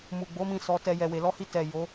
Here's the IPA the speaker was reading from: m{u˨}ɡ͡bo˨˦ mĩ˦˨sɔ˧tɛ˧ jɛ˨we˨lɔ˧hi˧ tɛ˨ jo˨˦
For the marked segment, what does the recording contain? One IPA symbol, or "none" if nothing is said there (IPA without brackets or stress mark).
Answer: u˨